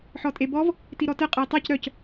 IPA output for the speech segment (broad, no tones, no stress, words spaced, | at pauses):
ħɔtʼebɔv | tiɾɔtə qʼəi̯tˤɛc ɾœc